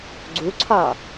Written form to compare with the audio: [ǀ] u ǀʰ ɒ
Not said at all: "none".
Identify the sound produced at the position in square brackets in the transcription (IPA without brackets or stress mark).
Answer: ɡ͡ǀ